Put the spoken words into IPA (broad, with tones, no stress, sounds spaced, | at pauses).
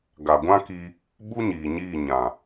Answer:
ɡ a˨ ɡʷ ã˦ k i˧ | ɓ u˦ ɲ iː˨ ɲ iː˦˨ ɲ ã˨